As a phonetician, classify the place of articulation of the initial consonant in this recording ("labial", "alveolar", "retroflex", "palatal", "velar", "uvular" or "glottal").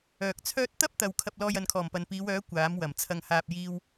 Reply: velar